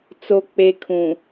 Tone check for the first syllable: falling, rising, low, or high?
low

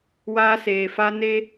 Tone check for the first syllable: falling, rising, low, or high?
high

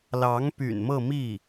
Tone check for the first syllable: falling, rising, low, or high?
rising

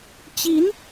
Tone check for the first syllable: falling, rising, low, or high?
rising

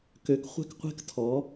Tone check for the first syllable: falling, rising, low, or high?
rising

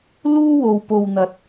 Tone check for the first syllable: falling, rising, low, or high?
high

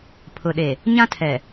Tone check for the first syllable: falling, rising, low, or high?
low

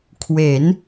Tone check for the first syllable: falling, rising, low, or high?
rising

